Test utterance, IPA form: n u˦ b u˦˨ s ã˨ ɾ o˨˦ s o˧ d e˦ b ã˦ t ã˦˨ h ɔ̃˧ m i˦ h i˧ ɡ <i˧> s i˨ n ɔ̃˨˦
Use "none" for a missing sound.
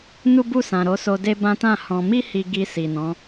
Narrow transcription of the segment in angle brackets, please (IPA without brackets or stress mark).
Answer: i˧